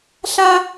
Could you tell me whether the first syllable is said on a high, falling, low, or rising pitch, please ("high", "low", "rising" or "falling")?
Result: high